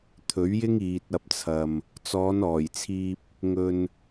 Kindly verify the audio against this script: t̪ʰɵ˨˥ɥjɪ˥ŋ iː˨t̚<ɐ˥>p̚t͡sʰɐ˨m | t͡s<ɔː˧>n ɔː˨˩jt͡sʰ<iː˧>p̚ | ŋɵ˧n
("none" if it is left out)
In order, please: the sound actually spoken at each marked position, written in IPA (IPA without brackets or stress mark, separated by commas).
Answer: ɐ˧, ɔː˨˧, iː˧